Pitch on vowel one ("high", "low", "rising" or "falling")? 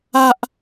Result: high